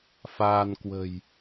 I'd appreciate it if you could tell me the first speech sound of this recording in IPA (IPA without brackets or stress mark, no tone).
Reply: f